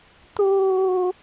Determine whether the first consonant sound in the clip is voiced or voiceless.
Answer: voiceless